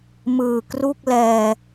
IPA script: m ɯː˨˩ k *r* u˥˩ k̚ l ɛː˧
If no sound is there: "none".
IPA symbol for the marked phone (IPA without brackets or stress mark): r